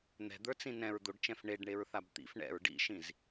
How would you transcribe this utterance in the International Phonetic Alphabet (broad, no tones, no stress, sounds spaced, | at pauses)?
n̪ ɛ̤ d̪ ə˞ t͡s ĩ n ɛ̃ ɹ d̪ o ɖ t͡ʃ ɛ̃ f ɳ e ɖ ɳ e ɹ θ a b t̪ ḭ f ɳ ɛ̰ ɹ ɖ ḭ ʃ ĩ z